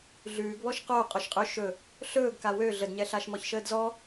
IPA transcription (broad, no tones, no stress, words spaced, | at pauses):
ɮʉːɡβɔʃ qo qʼoʃqʼø ʃɵ | ɬɵːɡ kawø ɮədɲɛɬaʃ mɔçʃəːdzɔ